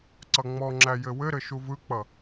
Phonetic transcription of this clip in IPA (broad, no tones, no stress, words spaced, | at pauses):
ǀʌŋ͡mɔŋ͡ǁæ jɘwɘɾɘ ʃuvɯk͡pʌ